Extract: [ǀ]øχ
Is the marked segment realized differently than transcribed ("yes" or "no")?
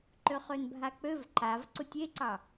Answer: yes